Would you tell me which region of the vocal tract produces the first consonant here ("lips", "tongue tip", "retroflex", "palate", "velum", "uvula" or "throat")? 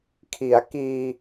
velum